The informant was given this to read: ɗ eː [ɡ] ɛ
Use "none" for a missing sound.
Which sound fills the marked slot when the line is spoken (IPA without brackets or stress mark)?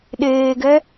ɡ